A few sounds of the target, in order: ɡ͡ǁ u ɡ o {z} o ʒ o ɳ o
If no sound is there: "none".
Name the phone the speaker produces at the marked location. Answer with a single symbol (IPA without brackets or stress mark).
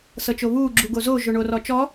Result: z